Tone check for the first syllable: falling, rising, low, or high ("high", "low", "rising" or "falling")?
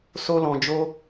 high